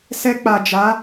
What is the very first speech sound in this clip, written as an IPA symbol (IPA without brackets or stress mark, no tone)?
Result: s